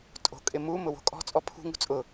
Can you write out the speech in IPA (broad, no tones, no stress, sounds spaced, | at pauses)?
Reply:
tʼ o̤ kʼ ɪ m u m ʊ w o̤ kʼ ɔ̤ t͡sʼ ɔ pʰ ṳ ŋ ṳ t͡sʼ ʊ